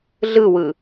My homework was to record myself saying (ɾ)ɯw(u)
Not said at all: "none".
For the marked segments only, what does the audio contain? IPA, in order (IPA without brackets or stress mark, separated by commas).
ɮ, ɯ